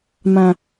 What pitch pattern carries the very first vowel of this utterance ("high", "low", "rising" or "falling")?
low